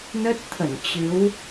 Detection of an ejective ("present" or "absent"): absent